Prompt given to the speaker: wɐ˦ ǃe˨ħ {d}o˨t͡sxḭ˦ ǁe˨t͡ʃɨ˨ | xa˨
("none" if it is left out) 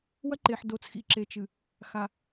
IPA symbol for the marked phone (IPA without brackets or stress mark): d